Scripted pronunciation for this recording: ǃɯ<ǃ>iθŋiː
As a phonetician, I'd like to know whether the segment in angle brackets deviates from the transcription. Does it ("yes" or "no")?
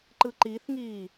no